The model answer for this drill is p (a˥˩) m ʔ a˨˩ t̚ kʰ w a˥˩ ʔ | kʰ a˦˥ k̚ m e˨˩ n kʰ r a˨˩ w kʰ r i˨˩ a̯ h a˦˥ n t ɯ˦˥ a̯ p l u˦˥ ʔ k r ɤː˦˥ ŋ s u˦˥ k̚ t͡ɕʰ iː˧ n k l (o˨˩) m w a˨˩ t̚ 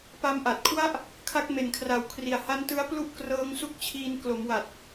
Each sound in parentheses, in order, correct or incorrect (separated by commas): incorrect, incorrect